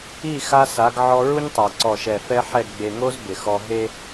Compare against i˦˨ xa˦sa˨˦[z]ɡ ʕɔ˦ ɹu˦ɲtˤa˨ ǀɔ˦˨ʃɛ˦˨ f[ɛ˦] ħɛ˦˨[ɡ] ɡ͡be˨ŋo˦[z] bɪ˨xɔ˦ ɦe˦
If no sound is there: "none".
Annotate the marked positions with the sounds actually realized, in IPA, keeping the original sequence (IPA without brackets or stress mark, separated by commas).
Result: none, ɛ˦, ɡ, z